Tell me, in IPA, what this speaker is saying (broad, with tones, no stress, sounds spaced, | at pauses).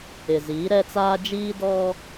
ɪ˨ z iː˨˦ ɾ ɛ˦ t͡s aː˦ d͡ʒ iː˦ d ɔ˦